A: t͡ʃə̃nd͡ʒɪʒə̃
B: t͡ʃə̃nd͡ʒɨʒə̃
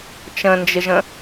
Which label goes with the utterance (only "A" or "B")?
A